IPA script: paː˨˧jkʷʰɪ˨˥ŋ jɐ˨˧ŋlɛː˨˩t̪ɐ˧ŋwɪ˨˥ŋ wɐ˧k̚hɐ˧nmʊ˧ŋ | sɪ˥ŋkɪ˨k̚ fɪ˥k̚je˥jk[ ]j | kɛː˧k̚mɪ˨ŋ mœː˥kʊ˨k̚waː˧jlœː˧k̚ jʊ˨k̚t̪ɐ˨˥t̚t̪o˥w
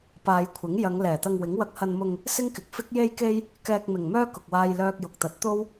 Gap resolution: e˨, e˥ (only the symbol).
e˥